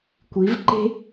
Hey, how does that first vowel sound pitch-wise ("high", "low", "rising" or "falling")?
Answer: rising